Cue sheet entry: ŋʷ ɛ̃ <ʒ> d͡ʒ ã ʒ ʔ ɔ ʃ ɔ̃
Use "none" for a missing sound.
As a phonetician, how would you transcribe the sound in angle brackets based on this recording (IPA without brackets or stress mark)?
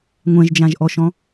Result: ʒ